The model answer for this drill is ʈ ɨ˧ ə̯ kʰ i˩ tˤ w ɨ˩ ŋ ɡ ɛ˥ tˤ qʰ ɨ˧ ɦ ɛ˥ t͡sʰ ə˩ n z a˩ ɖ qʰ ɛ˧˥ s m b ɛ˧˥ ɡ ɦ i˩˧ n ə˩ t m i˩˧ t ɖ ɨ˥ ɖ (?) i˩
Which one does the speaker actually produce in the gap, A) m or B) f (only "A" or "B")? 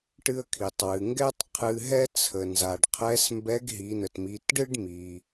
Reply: A